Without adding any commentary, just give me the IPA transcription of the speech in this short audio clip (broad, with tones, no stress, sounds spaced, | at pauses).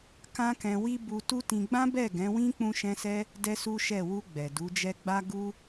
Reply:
k ã˦ k ɛ̃˧ w i˦ b u˧ t u˦ t ĩ˧ ɡ͡b ã˦ b ɛ˦˨ ɡ ɛ̃˨˦ w ĩ˦ k͡p ũ˧ ʃ ɛ̃˧ s ɛ˧ | d ɛ˦ s u˦ ʃ ɛ˦˨ w u˧ ɡ͡b ɛ˨ d u˨˦ d͡ʒ ɛ˦ ɡ͡b a˧ ɡ u˧